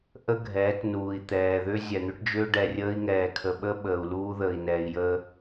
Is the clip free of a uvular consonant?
yes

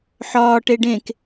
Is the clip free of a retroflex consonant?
no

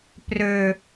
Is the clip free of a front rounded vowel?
no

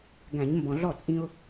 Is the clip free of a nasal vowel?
no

